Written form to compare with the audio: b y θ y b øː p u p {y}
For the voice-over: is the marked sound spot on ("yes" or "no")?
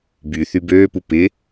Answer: no